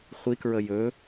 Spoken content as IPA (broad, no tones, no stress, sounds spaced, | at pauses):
χʷ i k ɹ ə j ɵ